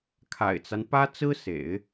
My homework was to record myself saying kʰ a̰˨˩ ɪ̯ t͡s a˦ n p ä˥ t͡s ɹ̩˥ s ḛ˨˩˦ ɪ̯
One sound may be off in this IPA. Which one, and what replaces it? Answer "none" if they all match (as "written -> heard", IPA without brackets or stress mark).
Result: none